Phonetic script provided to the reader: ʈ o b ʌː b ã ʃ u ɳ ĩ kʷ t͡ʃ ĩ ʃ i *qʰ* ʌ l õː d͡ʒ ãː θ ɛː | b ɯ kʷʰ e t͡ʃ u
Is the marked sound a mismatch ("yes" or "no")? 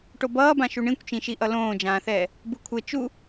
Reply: yes